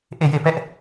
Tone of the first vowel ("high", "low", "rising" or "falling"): falling